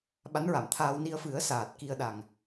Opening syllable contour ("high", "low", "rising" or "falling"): rising